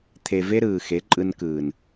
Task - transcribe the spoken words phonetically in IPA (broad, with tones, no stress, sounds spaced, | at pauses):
t̪ʰ e˨ v e˦ ɾ ɯː˨ x e˨˦ ǃʼ ɯ˧ n k ɯː˨ n